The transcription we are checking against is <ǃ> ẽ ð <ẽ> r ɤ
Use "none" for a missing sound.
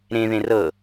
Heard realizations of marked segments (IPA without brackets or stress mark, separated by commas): ɾ, ẽ